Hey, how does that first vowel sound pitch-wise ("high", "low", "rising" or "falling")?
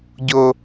low